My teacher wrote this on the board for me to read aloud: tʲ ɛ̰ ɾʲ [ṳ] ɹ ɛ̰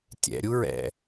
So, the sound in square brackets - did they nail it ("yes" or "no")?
no